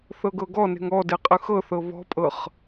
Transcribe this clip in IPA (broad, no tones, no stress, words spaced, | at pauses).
θɤɡɤɡɔne̤ŋ ɔde qʼɯxɤθɤ βɔ̤pʼɤχ